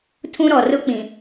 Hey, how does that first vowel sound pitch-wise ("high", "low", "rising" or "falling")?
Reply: high